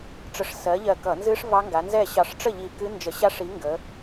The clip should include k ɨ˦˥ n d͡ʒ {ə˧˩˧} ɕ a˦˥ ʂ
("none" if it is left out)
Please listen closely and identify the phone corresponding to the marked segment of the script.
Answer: ə˧˩˧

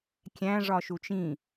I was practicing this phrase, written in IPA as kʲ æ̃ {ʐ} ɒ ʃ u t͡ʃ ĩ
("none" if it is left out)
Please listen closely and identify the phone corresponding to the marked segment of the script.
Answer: ʐ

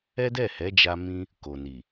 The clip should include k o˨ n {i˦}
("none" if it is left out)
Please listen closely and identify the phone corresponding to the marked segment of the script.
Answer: i˨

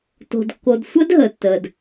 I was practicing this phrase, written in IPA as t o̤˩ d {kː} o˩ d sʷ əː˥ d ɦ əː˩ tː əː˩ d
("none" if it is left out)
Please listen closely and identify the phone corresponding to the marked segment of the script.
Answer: kː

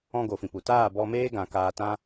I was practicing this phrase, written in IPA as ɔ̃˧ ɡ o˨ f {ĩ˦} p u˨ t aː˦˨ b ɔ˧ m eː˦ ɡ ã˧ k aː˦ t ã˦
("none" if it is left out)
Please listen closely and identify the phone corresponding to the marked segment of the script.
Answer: ĩ˨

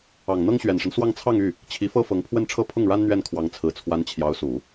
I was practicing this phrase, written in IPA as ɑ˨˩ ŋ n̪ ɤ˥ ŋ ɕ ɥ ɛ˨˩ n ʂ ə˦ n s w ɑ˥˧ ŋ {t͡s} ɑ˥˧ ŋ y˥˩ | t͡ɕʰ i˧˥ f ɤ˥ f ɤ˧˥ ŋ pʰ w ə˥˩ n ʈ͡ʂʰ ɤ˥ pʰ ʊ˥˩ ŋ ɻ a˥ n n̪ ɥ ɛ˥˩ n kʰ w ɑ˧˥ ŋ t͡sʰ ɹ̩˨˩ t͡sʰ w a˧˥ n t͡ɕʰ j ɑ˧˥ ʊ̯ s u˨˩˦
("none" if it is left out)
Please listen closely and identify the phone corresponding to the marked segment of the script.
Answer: t͡sʰ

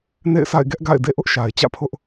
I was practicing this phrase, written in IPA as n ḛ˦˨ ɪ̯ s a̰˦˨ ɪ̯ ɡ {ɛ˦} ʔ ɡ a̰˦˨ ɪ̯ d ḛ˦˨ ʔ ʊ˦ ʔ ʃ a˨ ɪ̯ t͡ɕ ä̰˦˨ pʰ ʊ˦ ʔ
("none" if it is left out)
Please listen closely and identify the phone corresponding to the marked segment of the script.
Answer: ɛ˦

